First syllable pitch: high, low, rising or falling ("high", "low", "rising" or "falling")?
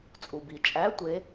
low